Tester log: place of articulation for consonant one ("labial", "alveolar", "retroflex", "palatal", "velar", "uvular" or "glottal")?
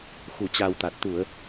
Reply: velar